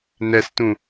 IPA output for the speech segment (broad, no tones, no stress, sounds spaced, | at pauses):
n ɛ s t ũ